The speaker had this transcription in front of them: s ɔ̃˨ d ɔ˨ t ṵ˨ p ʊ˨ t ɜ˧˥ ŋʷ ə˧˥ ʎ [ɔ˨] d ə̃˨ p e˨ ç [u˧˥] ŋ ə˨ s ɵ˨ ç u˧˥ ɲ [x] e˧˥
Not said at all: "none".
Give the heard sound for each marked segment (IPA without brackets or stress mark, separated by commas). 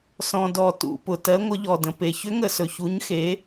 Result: ɔ˨, ʏ˧˥, x